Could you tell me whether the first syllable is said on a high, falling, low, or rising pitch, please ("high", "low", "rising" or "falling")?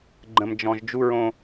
low